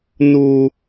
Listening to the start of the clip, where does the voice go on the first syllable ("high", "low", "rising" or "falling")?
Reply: high